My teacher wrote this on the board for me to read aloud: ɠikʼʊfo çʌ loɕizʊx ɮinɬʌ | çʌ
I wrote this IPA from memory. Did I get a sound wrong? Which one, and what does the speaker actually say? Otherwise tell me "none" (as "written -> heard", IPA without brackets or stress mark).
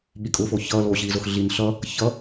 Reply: none